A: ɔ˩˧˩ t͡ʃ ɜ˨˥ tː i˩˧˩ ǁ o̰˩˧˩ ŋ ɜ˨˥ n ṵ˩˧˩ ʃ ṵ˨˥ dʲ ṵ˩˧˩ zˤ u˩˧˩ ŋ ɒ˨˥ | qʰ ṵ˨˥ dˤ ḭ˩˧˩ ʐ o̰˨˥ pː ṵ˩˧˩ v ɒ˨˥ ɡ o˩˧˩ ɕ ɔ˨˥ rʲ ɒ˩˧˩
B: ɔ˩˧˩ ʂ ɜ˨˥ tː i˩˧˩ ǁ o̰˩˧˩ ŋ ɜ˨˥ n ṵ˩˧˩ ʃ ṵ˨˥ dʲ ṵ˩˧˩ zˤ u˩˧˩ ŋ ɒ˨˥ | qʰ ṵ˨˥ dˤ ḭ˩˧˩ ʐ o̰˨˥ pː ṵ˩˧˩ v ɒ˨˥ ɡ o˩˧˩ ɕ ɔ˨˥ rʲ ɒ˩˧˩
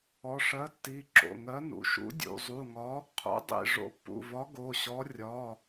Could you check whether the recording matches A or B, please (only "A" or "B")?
B